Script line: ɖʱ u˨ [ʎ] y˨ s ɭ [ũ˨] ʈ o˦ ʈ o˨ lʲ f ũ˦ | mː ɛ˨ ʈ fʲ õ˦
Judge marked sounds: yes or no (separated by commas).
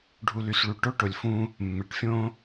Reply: no, no